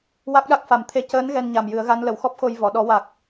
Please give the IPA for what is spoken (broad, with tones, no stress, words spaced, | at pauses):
wa˦˥k̚ɗa˦˥k̚fa˨˩˦mt̪ʰe˧ cəː˧˥n ɣɛ˧nɲa˨˩mjɨ˨˩˦ə̯ɣa˧˥n lə˨˩˦wxɔ˦˥p̚xo˧j vɔ˨˩˨ɗɔ˨˩˦wa˨˩k̚